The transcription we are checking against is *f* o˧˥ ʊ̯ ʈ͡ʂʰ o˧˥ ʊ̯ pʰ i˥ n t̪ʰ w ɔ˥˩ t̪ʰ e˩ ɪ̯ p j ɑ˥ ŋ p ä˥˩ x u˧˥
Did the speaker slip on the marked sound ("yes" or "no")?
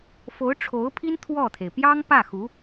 no